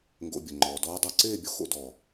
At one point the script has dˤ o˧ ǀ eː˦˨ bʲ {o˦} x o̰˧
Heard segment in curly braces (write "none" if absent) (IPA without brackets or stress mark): o˦